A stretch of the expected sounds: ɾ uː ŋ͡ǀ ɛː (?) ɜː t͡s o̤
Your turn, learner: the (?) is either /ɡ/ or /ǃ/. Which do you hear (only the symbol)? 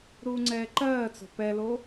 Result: ǃ